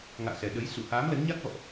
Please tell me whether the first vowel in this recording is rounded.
no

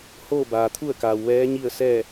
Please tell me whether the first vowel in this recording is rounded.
yes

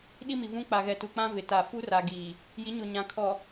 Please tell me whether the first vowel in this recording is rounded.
no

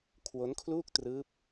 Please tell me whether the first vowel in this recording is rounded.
yes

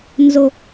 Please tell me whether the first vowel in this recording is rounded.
yes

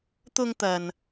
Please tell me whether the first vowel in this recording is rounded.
yes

